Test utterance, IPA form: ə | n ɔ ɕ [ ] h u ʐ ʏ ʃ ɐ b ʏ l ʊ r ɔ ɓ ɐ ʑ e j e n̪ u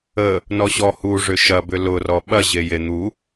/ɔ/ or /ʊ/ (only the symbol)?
ɔ